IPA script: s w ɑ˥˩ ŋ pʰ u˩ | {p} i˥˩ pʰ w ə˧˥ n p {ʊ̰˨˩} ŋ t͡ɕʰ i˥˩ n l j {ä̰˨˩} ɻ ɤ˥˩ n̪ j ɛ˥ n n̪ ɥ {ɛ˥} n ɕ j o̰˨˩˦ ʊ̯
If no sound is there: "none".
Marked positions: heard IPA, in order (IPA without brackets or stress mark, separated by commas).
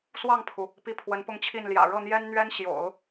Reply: p, ʊ˥˧, ä̰˨˩, ɛ˥